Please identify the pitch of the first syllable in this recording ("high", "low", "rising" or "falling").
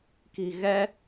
low